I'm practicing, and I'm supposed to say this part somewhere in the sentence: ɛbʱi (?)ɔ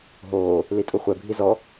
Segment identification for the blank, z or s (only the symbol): z